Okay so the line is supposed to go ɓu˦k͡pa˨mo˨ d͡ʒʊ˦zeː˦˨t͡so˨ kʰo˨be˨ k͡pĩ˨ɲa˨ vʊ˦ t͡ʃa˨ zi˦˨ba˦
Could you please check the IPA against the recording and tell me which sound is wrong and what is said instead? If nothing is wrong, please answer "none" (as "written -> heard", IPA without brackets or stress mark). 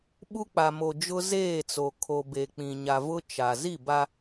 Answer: none